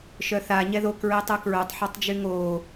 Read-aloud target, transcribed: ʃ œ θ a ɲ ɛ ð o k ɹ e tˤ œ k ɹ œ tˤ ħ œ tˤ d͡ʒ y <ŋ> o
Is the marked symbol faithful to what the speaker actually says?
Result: yes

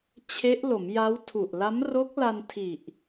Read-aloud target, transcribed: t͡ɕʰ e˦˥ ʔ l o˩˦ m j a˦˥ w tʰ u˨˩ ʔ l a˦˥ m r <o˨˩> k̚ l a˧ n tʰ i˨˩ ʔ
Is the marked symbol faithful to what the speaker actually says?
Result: no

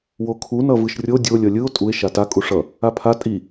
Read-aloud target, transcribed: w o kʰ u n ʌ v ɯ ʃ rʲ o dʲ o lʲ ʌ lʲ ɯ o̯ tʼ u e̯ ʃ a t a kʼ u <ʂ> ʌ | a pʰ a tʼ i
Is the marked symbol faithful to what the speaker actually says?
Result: yes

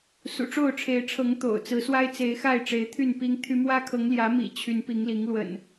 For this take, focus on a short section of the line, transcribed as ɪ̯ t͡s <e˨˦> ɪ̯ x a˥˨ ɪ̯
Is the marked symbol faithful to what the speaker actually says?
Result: yes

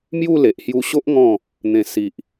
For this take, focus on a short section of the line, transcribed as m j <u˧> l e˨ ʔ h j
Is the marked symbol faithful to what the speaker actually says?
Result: no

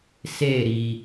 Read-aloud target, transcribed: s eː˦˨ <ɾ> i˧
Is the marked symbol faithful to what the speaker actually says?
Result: yes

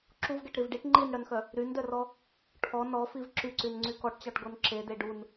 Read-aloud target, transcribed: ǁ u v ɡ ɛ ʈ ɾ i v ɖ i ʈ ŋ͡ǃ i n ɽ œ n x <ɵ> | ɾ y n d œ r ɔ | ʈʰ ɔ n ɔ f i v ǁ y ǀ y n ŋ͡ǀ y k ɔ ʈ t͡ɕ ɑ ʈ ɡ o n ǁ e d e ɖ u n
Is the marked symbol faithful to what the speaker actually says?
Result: no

